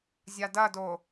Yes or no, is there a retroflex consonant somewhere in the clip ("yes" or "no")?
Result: no